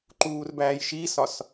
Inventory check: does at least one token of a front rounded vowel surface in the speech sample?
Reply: no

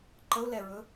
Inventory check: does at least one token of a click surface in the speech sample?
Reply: yes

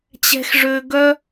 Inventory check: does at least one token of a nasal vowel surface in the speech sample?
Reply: no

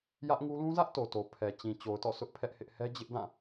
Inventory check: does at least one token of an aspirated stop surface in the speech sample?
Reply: yes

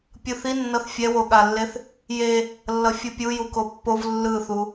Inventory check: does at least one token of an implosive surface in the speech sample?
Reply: yes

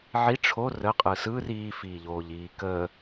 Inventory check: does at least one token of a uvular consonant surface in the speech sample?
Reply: yes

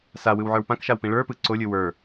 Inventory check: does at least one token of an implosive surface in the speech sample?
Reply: no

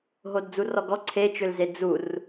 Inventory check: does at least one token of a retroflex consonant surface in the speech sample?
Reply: no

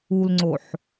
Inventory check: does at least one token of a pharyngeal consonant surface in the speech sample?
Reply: yes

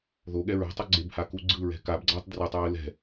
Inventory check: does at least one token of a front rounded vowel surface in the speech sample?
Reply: no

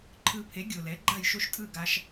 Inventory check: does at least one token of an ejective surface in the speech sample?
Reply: yes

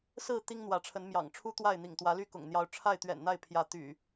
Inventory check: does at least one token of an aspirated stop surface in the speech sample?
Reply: yes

